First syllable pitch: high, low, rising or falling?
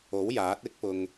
rising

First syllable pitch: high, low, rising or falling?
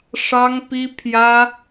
high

